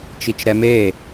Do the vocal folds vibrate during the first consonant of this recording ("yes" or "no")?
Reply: no